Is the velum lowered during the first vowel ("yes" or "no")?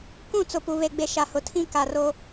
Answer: yes